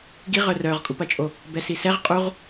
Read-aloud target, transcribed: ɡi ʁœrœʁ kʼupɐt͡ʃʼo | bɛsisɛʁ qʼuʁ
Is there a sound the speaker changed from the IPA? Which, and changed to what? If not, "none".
none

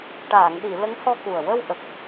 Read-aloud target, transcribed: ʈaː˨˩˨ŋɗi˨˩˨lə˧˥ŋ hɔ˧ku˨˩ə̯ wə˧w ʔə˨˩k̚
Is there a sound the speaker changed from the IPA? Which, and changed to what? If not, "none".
none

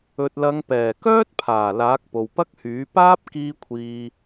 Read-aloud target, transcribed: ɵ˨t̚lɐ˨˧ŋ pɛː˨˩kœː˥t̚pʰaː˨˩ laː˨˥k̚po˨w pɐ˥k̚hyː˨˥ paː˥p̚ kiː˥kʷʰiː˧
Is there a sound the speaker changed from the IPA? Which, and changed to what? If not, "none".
none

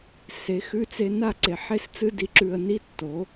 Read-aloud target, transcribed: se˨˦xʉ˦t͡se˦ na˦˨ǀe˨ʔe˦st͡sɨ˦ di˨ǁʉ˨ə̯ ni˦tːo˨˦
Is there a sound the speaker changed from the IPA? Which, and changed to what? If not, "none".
ʔ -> ħ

